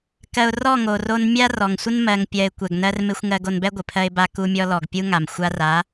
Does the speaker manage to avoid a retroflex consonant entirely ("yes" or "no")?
yes